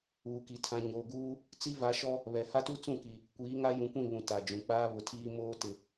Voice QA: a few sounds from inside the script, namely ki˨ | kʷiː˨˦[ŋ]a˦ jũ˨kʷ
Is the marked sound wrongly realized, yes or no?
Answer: no